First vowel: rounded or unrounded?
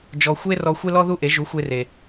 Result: rounded